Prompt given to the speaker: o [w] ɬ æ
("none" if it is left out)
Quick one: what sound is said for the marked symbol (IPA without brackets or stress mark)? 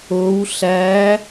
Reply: w